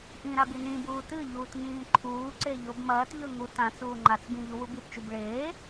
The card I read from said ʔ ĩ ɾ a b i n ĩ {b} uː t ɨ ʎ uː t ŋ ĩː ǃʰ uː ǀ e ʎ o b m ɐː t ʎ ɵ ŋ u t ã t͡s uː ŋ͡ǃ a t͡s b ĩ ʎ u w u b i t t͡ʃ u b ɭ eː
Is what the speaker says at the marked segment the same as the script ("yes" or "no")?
yes